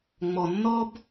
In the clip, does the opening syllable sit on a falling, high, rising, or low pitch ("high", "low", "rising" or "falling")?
low